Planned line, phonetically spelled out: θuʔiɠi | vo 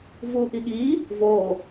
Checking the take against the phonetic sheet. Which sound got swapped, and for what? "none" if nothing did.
θ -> v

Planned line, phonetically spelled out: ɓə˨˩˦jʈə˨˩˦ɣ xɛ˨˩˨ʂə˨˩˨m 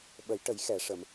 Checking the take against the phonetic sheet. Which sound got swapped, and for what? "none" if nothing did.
ɣ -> j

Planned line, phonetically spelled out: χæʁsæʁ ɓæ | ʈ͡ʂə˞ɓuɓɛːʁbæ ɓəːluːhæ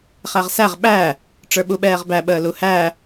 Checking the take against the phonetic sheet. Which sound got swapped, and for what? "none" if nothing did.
uː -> u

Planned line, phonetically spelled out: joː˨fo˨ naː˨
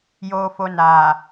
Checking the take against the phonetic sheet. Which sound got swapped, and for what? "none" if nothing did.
none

